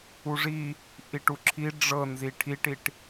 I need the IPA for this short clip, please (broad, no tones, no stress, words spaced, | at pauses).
uʐi | ʔiʈuǁʰi ɖ͡ʐɤnzi ʈʰiʈiʈ